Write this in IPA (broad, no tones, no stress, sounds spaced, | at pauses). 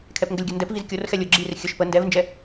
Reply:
kʰ ɛ p ŋ ɡ ə lʲ ɡʲ o n d ɛ p v i z kʲ o r x ɛ lʲ o ɡ͡ǁ i r xʲ ə ʃ p ə n d ɛ v n d͡ʒ ɛ